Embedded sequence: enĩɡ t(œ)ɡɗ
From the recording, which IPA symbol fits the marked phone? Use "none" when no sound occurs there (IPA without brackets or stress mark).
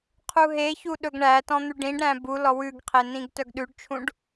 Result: œ